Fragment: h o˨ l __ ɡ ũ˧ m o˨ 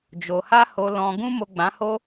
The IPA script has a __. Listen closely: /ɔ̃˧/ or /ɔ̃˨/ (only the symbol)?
ɔ̃˨